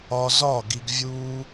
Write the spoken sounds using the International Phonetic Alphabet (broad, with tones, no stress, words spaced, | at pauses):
ɒ˧ zɒ˦˨ ɡi˧ɡvʲuː˦